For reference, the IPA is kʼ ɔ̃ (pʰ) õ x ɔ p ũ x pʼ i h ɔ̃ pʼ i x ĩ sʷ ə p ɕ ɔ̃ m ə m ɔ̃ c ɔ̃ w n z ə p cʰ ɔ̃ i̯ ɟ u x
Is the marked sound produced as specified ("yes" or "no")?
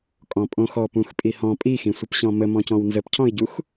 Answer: no